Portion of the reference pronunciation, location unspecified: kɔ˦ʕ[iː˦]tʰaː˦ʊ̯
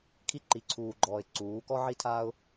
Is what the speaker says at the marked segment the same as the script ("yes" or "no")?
no